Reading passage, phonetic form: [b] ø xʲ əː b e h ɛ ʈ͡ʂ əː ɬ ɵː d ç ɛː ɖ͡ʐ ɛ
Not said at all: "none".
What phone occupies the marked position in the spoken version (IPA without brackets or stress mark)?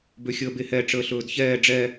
b